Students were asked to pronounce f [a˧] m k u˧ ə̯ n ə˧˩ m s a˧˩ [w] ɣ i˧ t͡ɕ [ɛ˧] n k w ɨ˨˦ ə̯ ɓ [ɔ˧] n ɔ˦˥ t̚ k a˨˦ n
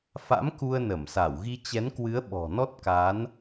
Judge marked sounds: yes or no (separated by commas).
no, yes, no, no